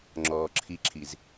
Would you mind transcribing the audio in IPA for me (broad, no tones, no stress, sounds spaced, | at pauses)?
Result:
ŋ͡ǁ ɔː ǁʰ i ǁʰ i z